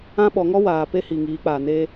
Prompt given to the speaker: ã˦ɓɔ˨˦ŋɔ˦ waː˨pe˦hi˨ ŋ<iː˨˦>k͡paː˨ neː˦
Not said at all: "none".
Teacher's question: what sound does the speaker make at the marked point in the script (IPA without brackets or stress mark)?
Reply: iː˨˦